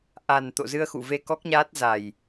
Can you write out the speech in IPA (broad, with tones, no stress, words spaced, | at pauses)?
ʔa˨˩n t̪o̰˧˨ zɨ˧ə̯xṵ˧˨ve˧ kɔ˦˥k̚ɲa˦˥t̚za˨˩j